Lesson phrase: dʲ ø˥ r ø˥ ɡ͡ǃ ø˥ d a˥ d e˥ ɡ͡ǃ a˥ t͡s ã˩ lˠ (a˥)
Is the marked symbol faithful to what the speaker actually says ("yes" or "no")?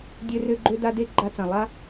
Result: yes